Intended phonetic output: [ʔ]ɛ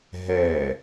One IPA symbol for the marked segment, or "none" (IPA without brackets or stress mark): ɦ